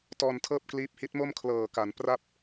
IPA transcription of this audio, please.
t ɔː˧ n tʰ ɤː˥˩ p̚ k l iː˦˥ p̚ h i˦˥ t̚ m o˥˩ m kʰ l ɤː˨˩ k a˩˦ n p r a˥˩ p̚

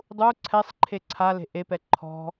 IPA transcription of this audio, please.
dˤ u ǀʰ ɛ sˤ ǃʰ e ǀʰ a l e̤ ʔ e p ɛ ǃʰ ɔ̤

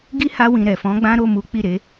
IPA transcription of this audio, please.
ɡ i˦ h a˧ w ĩ˨ ɾ ɛ˨ f ɔ̃˨˦ ɡ͡b ã˦ ɾ o˦˨ m u˨˦ k͡p i˦˨ ɾ e˨˦

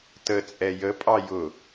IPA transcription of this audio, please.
t ə t͡sʼ ɛ j ə pʼ ɑ j ʊ

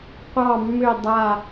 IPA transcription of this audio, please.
qʷ ɑ˨˩ mː ʏ˨˩ dˤ a˨˩

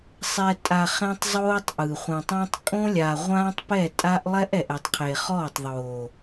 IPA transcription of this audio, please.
sˤ ɛ˨ tʼ a˨ χ ẽ˦ tˤ zˤ oː˦ tˤ ʔ ɯ˨ χʷ ɛ̃˨ tˤ õ˦ tˤ kʼ õ˦ lʲ a˨ ʁʷ ãː˦ tˤ p ɛ˦˨ tʼ a˦ ʔ lˠ ɛ˦ ʔ ɛ˨ ʔ ɛ˨ tˤ qʰ e˨ χ ɔː˦˨ tˤ ðˤ oː˨

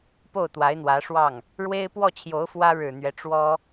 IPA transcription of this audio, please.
p o˥˩ ʊ̯ t̪ w a˧˥ ɪ̯ n̪ w ä˧˥ ʂ w ɑ˥˩ ŋ | ɻ w e˥ ɪ̯ p w ɔ˥˩ t͡ɕʰ j o˧˥ ʊ̯ f w ä˥ ɻ ɻ̩˨˩ n̪ ɥ ɛ˦ ʈ͡ʂ w ɔ˥

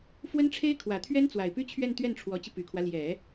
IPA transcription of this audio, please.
f w ə˥ n ʈ͡ʂʰ e˥ ɪ̯ kʰ w ä˨˩ t̪ʰ ɥ ɛ˥ n t͡s w a˨˩ ɪ̯ p y˥ t͡ɕʰ ɥ ɛ˥˧ n t̪ ɥ ɛ˥˩ n ʈ͡ʂʰ w ɔ˧˥ t͡ɕ i˧ p y˨˩ kʰ w ä˦ l j ɛ˨˩˦

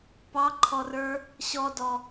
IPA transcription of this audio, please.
p ɑ ǃʰ ɔ r ə˞ | ɕ ɔ d ɔ

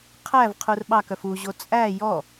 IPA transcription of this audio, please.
qʰ æ v qʰ u r ɓ ɑ k œ f u ʑ o t͡sʼ æ j ɔ

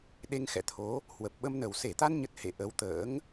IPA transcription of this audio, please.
ɗ e˧ ŋ x ɛ̰˧˨ t̪ʰ o˨˦ | h w ə˨˩ p̚ ɓ ə˧ m n ə˨˩ w s e˧˩ t̪ a˧ n ɲ ə˦˥ t̚ h ḛ˧˨ ʔ ə˨˦ w t̪ ə̰ː˧˥ ŋ

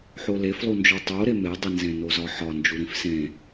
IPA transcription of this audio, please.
ħ o l e f lˠ u n d͡ʒ o tˤ o ɾ e m e dˤ i n z ẽ n o z ɒ ħ ɒ n d͡ʒ u ɾ ĩ f s ẽ

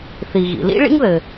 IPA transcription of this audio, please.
θ i˩ ɣ ḭ˩ l ḭ˥ ɭ ḭ˥ ŋ ð ɘ˩

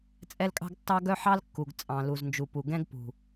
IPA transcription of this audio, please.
t͡sʼ ɛ˦ l kʼ ɑ̤˦ ɡ tː ɑ˦ ɡ œ˦ ħ ɑ˦ l kː u˨ ɡ t͡sʼ ɑ̃˨ l u˨ z n d͡ʒ u˨ p u˨ ɡ ɛ̃˦ ɡ p ṳ˨

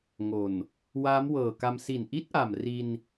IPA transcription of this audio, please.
ŋ o˨˩ n | w aː˦˥ m w ɤː˨˩ k a˧ m s i˨˩ n ʔ i˦˥ t̚ ʔ a˨˩ m r i˧ n

